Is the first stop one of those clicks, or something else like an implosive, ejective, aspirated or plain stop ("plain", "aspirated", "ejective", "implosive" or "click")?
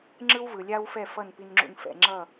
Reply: click